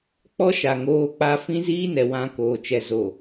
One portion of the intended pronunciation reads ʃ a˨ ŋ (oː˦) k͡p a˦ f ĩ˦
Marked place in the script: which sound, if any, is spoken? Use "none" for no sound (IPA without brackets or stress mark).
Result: oː˦